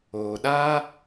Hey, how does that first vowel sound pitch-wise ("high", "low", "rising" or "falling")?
low